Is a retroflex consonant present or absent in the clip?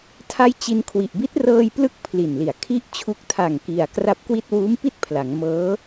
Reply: absent